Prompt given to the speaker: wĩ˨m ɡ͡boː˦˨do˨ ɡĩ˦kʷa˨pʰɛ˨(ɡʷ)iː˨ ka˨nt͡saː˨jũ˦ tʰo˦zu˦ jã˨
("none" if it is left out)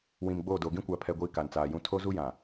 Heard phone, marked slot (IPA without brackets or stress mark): ɡʷ